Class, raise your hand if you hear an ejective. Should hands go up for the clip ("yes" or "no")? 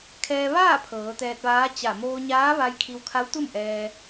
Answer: no